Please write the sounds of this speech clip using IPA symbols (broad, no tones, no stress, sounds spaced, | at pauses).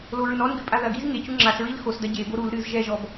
l o ɹ ɨ n ɔ n ɡ ɨ pʼ a ð ɐ ɡ i z ŋ e c u ŋ͡ǁ a s ɹ i l x o s d ɐ ɟ e b o ɾ u l ɾ ɨ z ʒ ɛ ʒ ɔ b